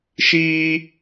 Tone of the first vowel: high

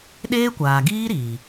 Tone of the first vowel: high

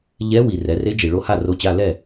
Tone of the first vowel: rising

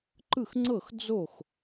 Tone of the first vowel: falling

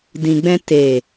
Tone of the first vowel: low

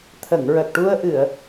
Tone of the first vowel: low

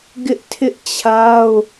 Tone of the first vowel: high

